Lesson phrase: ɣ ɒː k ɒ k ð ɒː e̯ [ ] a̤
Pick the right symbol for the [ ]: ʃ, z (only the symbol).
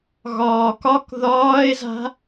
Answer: z